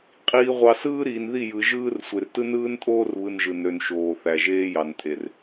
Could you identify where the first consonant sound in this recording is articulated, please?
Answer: uvular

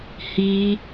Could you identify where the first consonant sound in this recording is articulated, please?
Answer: glottal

